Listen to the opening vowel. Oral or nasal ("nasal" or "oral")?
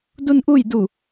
oral